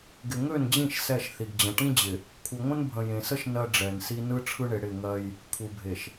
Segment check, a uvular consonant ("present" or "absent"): absent